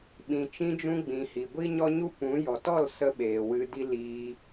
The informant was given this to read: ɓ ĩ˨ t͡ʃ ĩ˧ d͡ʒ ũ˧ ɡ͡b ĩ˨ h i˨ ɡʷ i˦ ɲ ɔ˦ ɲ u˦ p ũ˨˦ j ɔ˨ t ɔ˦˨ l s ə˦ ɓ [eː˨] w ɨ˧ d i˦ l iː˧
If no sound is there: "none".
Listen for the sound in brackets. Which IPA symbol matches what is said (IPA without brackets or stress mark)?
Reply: eː˨